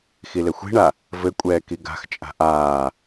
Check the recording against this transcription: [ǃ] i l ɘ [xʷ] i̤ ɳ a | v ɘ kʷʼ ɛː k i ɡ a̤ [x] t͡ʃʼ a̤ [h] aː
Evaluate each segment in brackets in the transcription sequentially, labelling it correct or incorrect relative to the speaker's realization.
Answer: incorrect: x, correct, correct, incorrect: ʔ

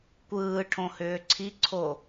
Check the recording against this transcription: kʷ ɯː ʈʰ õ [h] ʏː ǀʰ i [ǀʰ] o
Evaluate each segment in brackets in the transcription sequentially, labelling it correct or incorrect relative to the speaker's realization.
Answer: correct, correct

